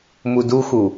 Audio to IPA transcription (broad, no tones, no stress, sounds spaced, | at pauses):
m u d u x u